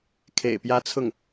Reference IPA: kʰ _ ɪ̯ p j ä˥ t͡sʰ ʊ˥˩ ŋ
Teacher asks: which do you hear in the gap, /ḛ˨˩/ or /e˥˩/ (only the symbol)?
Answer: ḛ˨˩